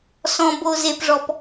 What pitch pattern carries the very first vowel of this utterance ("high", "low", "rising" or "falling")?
low